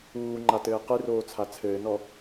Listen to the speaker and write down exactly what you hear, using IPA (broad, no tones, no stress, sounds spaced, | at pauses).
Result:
uː ŋ͡ǃ a t ɘː q ɨ r oː t͡sʰ a t͡sʰ ɘː n ɔ